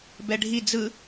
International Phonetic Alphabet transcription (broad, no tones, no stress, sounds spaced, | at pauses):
b ɛ ɖʱ i d͡z ɯ